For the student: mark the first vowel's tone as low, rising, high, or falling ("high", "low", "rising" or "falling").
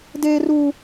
high